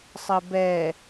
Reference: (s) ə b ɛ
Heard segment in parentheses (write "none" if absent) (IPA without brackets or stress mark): sˤ